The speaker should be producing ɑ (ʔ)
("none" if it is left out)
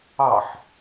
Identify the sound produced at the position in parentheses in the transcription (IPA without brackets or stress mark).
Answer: ħ